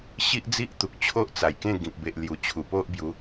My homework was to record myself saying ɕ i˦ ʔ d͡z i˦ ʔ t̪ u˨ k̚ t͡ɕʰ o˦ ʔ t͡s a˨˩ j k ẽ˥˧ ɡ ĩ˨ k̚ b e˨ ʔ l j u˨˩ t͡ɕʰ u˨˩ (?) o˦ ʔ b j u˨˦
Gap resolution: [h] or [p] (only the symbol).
p